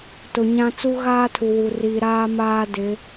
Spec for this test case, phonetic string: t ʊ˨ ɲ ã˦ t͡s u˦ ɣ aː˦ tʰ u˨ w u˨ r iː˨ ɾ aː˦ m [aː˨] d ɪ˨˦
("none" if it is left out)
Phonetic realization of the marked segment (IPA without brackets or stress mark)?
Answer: aː˦